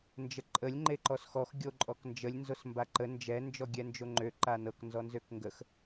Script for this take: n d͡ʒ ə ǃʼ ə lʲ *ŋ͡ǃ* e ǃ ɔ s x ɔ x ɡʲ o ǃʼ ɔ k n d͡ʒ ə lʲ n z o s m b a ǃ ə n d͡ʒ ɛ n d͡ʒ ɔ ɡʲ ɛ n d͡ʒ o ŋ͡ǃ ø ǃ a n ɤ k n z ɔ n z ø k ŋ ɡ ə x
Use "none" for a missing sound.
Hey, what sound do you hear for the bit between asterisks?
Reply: ŋ͡ǃ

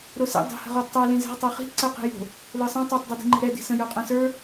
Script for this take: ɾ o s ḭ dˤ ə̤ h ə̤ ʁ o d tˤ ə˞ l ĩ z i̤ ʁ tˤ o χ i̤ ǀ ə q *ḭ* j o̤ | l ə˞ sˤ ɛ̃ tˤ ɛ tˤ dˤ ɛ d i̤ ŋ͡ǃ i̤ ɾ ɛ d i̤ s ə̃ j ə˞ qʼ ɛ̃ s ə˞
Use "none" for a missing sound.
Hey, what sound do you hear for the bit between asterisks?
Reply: i̤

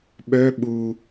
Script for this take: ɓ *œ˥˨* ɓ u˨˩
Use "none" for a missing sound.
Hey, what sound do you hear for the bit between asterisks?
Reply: œ˧˥˧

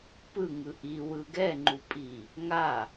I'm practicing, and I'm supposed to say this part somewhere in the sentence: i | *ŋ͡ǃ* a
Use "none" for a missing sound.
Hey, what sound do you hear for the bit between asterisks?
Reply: ŋ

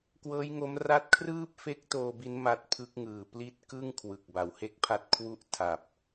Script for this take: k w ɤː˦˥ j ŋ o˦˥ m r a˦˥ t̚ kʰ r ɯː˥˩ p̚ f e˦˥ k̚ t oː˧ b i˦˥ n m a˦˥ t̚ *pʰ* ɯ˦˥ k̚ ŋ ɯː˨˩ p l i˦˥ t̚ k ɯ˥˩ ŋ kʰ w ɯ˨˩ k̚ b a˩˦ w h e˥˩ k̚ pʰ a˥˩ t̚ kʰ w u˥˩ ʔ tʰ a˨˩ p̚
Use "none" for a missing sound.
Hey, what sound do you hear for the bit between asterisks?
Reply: pʰ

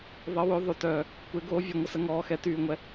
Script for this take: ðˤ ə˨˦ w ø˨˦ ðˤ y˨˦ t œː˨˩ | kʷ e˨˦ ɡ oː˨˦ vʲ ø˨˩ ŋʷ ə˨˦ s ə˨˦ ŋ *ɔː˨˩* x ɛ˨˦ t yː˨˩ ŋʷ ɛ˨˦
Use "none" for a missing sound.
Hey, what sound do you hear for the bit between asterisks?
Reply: ɔː˨˩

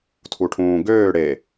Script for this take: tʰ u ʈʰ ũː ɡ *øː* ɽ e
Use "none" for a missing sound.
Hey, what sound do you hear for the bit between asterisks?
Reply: øː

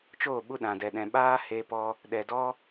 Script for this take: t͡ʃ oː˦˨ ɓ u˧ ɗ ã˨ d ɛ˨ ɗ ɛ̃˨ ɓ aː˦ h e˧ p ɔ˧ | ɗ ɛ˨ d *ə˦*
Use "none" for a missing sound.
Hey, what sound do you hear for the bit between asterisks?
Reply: ɔ˦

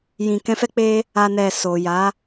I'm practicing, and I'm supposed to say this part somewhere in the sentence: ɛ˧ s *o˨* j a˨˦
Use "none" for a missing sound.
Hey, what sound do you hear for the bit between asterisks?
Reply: o˨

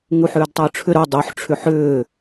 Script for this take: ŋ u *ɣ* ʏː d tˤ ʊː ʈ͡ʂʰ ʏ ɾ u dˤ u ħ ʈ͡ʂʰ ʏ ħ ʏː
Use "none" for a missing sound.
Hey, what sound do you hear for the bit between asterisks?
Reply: ħ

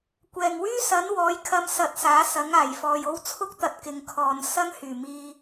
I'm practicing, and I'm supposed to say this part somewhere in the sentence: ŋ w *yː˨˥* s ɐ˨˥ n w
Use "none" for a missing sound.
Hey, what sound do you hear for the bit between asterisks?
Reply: yː˥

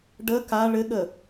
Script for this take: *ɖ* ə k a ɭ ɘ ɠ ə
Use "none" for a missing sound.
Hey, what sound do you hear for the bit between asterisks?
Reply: ɖ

